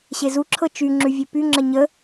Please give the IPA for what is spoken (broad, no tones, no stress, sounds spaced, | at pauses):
ɕ e z u ǁʰ ɤ t͡ʃ y ŋ͡ǁ ʉ vʲ e p y ŋ͡ǁ ə ɲ ə